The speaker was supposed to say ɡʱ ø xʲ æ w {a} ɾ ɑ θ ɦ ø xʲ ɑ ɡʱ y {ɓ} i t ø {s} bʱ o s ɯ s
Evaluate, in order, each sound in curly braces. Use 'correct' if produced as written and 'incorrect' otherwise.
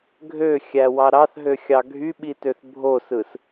incorrect: ɑ, correct, incorrect: θ

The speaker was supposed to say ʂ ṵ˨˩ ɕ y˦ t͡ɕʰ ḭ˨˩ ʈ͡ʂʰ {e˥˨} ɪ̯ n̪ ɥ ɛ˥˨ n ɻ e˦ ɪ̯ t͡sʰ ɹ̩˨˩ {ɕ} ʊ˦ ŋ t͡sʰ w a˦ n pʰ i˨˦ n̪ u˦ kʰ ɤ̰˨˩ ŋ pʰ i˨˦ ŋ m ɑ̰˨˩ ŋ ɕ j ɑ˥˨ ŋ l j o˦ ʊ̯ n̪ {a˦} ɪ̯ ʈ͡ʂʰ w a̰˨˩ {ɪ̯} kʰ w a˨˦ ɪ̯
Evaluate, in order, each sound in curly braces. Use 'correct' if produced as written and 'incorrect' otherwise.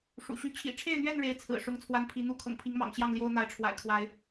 correct, incorrect: ʂ, incorrect: a˨˦, correct

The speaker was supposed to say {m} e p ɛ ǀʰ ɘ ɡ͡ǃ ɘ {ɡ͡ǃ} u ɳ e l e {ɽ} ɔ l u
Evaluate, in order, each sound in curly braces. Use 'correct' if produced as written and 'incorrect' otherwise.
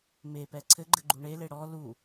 correct, correct, correct

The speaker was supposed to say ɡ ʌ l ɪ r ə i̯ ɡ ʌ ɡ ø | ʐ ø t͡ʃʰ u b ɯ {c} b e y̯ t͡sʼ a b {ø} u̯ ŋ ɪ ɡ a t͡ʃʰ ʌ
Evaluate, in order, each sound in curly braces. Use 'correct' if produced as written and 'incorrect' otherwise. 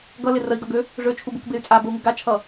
incorrect: k, incorrect: ə

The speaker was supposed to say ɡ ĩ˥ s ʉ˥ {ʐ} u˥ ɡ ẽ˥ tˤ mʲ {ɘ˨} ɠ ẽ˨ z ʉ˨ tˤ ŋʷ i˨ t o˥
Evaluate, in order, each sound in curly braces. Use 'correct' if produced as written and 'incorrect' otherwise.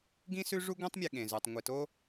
correct, incorrect: e˨

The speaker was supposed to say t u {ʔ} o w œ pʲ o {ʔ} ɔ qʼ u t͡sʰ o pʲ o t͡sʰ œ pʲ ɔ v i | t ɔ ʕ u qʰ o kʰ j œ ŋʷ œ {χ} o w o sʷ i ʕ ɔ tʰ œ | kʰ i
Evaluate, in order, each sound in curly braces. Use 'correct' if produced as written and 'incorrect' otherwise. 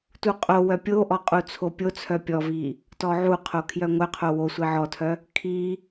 incorrect: qʼ, correct, incorrect: qʰ

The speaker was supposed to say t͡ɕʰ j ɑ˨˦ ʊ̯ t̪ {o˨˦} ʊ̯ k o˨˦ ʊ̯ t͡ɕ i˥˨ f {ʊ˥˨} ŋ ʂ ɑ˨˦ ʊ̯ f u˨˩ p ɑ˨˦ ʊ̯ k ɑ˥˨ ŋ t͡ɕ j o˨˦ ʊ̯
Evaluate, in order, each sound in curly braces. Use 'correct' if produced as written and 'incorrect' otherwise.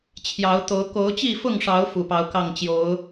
correct, correct

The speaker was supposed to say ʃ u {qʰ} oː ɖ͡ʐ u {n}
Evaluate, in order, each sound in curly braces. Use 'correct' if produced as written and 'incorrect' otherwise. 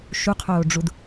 correct, incorrect: d

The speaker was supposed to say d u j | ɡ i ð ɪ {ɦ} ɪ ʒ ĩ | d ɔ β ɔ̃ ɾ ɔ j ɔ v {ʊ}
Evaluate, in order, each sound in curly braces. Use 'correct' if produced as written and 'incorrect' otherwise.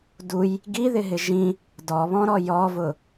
correct, correct

